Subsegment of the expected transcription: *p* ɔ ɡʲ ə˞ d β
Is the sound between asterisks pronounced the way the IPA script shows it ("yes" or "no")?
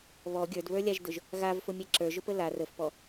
no